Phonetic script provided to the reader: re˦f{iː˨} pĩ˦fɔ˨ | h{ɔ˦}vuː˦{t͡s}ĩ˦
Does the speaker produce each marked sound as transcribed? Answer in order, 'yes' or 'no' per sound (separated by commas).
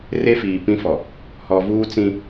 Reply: yes, no, yes